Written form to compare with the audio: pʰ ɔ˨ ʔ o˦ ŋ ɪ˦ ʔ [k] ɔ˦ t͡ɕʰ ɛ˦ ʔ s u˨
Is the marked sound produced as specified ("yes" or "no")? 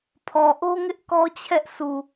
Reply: yes